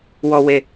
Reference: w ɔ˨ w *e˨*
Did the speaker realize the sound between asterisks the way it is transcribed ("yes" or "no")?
yes